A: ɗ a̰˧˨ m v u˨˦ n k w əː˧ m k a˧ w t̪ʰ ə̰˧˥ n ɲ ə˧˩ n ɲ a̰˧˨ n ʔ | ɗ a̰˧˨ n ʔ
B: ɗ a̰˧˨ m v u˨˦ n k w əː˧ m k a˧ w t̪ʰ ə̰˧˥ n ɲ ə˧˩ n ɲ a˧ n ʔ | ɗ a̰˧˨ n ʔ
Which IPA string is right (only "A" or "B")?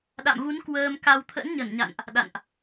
A